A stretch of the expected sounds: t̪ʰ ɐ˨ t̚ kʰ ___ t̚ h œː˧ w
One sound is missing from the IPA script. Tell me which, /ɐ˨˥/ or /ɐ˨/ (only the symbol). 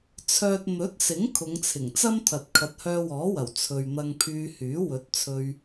ɐ˨˥